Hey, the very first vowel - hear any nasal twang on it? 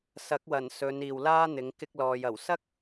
no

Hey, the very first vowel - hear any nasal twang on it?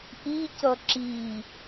no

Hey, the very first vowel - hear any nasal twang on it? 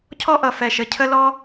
no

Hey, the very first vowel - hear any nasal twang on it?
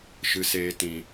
no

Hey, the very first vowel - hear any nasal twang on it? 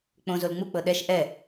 yes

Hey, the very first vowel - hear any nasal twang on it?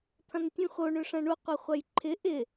yes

